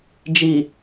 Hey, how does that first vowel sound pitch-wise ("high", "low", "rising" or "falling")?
low